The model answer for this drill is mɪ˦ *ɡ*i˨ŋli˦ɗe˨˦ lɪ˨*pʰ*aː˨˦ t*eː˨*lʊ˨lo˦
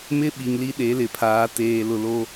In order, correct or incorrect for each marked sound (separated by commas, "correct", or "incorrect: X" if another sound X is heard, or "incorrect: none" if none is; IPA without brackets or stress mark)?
incorrect: ɓ, correct, correct